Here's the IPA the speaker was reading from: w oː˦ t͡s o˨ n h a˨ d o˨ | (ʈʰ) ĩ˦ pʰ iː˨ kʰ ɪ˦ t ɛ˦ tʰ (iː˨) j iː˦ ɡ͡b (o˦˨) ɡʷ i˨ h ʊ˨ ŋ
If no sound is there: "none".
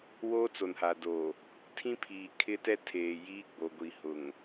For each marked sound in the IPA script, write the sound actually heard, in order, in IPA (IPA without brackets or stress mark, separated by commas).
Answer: tʰ, eː˨, o˨